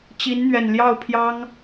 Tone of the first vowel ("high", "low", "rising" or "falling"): rising